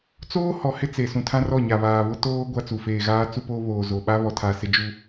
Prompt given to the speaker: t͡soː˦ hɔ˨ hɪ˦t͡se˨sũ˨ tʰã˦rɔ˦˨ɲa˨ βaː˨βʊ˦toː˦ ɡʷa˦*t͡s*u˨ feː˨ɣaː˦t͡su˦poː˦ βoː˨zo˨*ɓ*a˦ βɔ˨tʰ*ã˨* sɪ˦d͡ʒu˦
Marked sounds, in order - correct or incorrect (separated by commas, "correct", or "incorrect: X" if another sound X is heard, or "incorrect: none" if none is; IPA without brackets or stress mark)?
correct, correct, incorrect: a˨